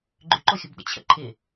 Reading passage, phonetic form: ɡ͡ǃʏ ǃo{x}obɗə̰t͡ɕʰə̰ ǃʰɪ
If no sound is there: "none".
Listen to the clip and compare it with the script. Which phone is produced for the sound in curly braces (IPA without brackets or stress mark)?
xʲ